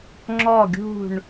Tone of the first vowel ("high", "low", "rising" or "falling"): falling